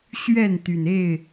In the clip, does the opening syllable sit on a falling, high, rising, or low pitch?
falling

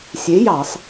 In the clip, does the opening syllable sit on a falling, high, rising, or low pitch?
rising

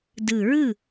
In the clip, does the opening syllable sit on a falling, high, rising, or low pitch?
low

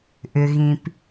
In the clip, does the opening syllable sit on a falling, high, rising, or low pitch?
low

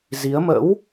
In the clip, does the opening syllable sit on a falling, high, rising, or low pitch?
rising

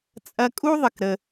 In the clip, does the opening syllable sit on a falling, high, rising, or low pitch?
high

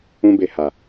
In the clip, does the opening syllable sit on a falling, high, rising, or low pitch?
high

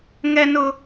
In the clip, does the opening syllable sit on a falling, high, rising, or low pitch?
high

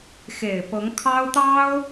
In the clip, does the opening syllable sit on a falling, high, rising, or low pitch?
low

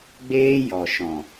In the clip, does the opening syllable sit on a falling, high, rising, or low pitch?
high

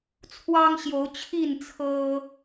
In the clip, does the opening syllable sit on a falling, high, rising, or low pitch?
high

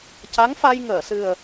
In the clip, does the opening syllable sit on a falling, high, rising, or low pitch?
rising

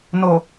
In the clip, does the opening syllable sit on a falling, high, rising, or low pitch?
low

